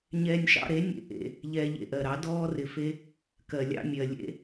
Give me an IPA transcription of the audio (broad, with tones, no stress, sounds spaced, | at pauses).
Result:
ɲ ɛː˧ nʲ ʃ ɑ̰˧ ɾ e˨˦ nʲ ḛ˧ ʔ ḛ˧ | ʎ ɛː˧ ʎ ḛ˧ ʔ ɜ˨ ɾ ɑ˨˦ d ɔː˦ r ɪ˧ f e˦ | k ɜ˨ lʲ ɑ̰˧ mʲ ɜ˨ lʲ ḛ˦